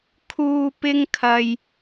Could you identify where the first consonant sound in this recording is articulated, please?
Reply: velar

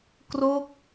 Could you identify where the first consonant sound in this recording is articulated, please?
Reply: velar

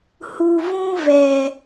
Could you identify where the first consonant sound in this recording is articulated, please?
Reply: glottal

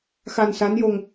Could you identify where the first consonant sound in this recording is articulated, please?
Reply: velar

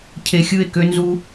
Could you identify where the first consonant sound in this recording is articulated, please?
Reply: palatal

